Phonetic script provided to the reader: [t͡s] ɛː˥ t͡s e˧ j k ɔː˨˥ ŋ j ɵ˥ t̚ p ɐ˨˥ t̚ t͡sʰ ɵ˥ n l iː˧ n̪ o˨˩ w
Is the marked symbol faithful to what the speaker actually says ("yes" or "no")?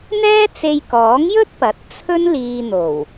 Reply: no